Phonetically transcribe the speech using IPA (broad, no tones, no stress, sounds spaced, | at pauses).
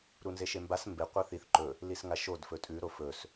ɾ u n z e ʃ e m b a s m b e qʷ ɐ θ i θ ǃ ɵ | l i s ŋ a ʃ o d f ɵ tʼ ʉ ɾ o f ɵ s